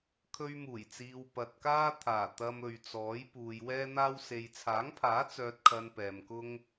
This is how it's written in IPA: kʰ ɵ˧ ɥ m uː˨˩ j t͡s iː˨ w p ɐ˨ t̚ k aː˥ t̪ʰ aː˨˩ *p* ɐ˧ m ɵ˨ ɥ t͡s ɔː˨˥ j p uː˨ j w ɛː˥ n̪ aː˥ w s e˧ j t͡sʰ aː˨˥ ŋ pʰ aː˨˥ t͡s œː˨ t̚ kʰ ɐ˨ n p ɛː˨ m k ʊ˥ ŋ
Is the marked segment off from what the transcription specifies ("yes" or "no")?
yes